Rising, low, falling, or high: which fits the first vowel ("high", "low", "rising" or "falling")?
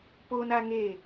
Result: high